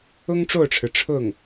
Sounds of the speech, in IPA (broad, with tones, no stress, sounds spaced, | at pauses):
ʊ˥ ŋ ʈ͡ʂ o˥˩ ʊ̯ ʈ͡ʂʰ ɻ̩˩ ʈ͡ʂʰ ʊ˥˩ ŋ